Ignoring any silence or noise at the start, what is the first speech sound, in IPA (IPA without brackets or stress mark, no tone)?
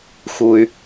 x